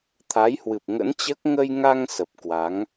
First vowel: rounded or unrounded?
unrounded